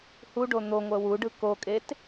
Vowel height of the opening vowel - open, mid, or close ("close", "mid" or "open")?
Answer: close